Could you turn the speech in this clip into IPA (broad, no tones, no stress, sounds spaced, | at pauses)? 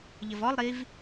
ʎ ə v ɔ lˠ ɾ i v